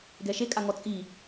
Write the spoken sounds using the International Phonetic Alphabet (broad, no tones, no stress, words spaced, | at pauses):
ɡɛʃe kʼaŋɔt͡sʼi